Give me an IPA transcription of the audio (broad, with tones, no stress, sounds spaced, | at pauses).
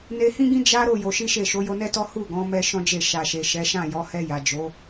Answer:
n e˧ h ĩ˦ ɡ ĩ˦ d͡ʒ a˦ ɾ o˦˨ j o˧ ʃ i˦ ʃ e˦˨ ʃ o˨˦ j o˧ n ɛ˦ t ɔ˦ h u˦˨ ɡ ɔ̃˨˦ m ɛ˦ ʃ ɔ̃˦ d͡ʒ e˦˨ ʃ a˨ ʃ e˨ ʃ ɛ˨˦ ʃ ã˦˨ j ɔ˨˦ h ɛ˧ j a˨ d͡ʒ o˨˦